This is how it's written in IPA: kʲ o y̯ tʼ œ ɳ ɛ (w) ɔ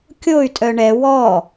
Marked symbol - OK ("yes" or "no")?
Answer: yes